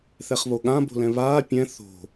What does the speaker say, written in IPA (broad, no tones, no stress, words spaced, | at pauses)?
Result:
θɛχβoɠã bo̤lɛ̃βaː pʲɛ̃ θo̤